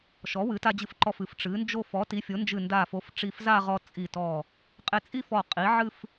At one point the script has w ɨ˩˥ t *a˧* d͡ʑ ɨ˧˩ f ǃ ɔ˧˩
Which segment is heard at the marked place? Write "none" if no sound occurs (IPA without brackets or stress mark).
a˧